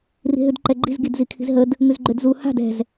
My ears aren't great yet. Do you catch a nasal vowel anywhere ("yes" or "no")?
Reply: no